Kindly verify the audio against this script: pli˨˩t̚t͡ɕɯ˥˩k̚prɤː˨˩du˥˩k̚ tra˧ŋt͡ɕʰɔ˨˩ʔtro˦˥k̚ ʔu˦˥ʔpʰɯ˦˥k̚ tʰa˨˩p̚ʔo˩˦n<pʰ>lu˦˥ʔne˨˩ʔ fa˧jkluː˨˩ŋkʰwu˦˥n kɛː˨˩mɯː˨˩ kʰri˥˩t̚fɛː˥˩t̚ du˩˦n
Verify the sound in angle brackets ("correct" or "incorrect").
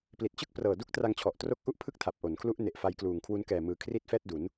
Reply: incorrect